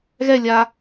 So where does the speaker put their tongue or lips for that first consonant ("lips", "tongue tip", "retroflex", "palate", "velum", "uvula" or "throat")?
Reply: velum